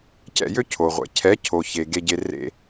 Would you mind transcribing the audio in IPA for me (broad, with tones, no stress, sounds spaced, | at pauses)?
c ɛ̰˦˨ j ø˦ cʰ o˨ ʁʷ ɛ̰˨ cʰ ɛ˨˦ cʰ o˨ ç e˨ ɡ e˧ ɟ e˧ r ḛ˦